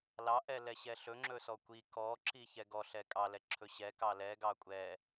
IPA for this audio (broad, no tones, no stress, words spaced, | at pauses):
lɑʔɛlɛ ɕɛɬɵŋ͡ǁɵ sɔkʷi kɔǁi çɛɡɔɬɛ kʼɑlɛ ǁʰɵɕɛkɑ lɛɡɑ kʷʼɛ